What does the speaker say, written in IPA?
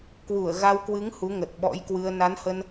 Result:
kwu˧˩ə̯ɣa˧wkwɨ˨˦ŋ hu˨˦ŋə˨˩t̚ɓɔ̰˧˥jkwɨ˧ə̯ na˨˦nhə˧n

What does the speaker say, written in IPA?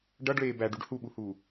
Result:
ɖʌɖɭeː bæɖuɖ huɓuhuː

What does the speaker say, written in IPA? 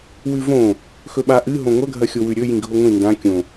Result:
wʉvõ | xɵɓaʔɨ ɦõŋʷɐ ɡʱɐxʲowʉɾʲɵ jĩɡʱoŋʷĩ ndã kʲõ

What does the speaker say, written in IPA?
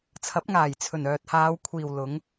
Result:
t͡sʰɐ˨˥p̚ ŋaː˨˩jt͡sʰɵ˨˩nœː˨t̚ haː˨˧wkʷʰiː˨wlʊ˨˧ŋ

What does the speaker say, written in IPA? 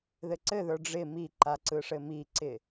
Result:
ðɘǀɘðə˞ ɖ͡ʐɪ miǃa ǀɯʂɘmiǀɪ

